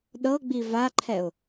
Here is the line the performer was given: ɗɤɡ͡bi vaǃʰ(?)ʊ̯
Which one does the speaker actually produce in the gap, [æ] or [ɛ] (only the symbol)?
ɛ